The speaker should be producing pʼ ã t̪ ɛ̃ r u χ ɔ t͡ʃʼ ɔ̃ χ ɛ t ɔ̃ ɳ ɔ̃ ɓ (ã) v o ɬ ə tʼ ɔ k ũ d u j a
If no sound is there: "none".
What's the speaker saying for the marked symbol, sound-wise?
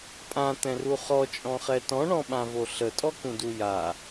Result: ã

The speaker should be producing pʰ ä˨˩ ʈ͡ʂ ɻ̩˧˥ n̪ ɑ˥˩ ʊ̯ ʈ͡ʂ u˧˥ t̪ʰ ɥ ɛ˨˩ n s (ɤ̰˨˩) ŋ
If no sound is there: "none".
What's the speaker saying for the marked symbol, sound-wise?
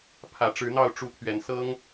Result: ɤ˥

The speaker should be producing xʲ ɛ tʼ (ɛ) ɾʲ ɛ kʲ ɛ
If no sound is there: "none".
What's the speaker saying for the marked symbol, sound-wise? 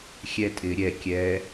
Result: ɪ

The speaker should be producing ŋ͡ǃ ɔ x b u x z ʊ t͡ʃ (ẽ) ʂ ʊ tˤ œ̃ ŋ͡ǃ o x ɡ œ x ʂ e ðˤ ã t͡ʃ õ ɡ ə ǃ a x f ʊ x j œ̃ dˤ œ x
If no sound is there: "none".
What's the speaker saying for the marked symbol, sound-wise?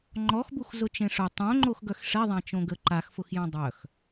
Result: ẽ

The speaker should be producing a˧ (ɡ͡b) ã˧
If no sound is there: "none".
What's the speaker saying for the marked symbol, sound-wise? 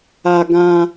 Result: ɡ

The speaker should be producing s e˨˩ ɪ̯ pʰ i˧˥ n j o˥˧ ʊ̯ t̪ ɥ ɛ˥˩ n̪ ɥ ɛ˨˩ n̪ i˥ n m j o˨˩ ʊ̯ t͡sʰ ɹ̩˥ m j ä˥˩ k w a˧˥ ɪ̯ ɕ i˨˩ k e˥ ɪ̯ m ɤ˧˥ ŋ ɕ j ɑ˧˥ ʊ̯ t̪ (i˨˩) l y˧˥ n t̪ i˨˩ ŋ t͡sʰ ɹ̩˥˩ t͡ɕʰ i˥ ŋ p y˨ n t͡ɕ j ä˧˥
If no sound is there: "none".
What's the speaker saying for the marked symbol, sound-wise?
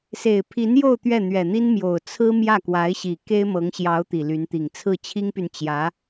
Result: i˨˩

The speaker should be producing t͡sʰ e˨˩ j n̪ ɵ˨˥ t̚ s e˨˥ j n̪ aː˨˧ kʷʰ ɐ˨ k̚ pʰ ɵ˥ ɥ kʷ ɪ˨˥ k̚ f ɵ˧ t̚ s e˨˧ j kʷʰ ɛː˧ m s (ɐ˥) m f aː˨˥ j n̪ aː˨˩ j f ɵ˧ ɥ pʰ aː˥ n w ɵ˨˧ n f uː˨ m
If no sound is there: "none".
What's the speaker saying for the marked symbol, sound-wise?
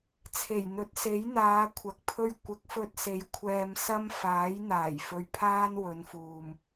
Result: ɐ˥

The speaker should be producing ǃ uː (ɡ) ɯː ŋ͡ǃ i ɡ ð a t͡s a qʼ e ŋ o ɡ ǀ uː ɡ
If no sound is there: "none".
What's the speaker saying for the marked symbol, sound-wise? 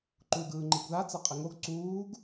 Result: ɡ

